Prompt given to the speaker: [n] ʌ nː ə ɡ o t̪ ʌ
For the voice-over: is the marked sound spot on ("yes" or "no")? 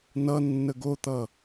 yes